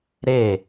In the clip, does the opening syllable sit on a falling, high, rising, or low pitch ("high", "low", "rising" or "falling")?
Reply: falling